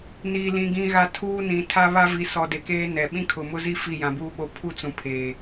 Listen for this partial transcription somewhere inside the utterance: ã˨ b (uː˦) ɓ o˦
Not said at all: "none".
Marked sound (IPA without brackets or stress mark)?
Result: uː˦